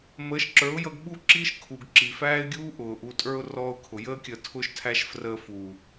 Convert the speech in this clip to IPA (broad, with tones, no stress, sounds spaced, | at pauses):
m əː˨˦ ʃ ǁ ə˞˨˦ ʊ̯ j ʌ˧ ɡ ɓ u˦ ǁ iː˦ ʃ kʰ u˨ ɡ ǁ i˨ f æː˦ ɪ̯ ɡʲ uː˦ ʔ ʊː˨ ʔ u˧ tʼ ə˞˦ ʊ̯ r ɔː˧ ʊ̯ kʰ ʊ˨ j əː˦ kʲ əː˧ tʰ ʊː˦ ʃ tʰ æ˦ ʃ f r əː˧ f uː˨